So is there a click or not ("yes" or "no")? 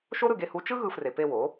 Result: no